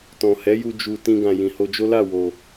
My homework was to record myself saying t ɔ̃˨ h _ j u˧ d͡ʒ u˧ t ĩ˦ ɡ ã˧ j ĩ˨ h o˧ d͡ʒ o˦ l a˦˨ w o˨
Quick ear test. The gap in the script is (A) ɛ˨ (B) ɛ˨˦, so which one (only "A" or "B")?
B